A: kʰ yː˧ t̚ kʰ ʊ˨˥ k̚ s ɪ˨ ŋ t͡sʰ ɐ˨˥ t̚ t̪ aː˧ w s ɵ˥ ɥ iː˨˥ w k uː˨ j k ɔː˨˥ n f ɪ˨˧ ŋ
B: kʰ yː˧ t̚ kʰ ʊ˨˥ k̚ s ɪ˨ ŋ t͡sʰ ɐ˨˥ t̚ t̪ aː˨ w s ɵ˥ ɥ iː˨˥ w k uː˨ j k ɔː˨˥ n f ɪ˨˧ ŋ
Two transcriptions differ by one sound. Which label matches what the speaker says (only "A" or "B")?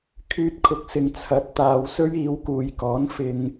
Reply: B